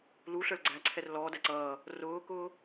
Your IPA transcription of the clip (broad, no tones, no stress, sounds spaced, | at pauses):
l u ɬ ə˞ l ɡ͡ǀ æ ǀʰ ɛ r l ɔː d æ ǀ ʌː | r ʊː k ʊː